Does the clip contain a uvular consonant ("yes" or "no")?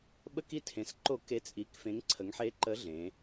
no